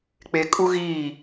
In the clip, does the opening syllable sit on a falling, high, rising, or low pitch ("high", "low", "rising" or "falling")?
low